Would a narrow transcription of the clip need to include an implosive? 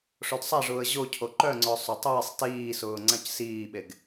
yes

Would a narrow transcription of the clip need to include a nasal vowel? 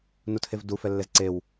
no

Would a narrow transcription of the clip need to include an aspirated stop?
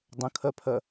yes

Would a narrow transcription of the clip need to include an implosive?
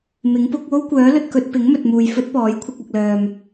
no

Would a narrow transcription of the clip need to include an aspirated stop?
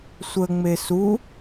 no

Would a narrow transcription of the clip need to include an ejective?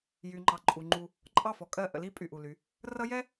yes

